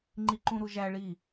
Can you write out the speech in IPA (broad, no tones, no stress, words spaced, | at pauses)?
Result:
ŋ͡ǃiǃũɾuʒæ ɭi